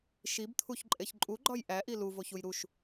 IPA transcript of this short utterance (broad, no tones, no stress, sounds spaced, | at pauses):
ʃ i b t̪ʰ u ç ǃʼ e ç ǃʼ u ɡ͡ǃ ɒ j ʔ æ ʔ i l u v o ç u j ɾ u ʃ